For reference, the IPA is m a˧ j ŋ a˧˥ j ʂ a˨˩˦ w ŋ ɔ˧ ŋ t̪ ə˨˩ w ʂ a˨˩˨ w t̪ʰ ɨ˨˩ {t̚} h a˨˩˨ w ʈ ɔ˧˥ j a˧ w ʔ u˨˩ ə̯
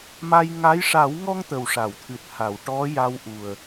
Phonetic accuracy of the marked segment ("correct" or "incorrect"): correct